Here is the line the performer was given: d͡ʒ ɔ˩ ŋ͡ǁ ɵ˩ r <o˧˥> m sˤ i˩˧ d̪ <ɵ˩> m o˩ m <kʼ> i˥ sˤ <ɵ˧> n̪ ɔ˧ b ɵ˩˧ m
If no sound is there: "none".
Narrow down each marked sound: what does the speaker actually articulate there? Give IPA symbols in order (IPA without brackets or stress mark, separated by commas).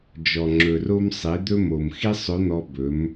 o˧, ɵ˧, x, ɵ˧˥